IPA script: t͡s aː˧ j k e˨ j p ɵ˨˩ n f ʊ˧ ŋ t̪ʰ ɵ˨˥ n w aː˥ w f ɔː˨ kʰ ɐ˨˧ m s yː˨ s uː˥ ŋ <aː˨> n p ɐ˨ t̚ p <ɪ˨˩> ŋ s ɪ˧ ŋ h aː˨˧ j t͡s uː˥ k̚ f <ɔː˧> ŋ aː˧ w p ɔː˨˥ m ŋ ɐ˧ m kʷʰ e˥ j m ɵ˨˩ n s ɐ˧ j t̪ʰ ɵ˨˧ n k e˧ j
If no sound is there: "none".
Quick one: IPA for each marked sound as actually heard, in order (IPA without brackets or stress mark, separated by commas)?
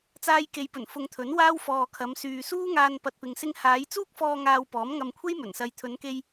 aː˧, ɪ˨, ɔː˧